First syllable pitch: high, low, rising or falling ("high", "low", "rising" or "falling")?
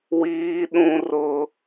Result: high